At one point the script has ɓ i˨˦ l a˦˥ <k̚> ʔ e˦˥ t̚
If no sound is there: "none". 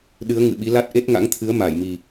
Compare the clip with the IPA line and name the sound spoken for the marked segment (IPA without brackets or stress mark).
t̚